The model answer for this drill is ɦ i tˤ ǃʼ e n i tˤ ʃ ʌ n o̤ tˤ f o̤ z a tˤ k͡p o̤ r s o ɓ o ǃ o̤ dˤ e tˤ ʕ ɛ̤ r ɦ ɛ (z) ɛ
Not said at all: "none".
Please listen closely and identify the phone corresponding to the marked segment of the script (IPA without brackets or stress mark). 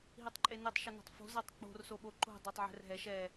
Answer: ʃ